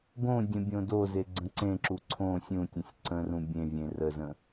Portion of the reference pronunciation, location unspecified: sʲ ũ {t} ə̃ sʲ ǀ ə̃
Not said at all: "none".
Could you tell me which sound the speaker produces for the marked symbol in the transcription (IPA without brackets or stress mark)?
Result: tʲ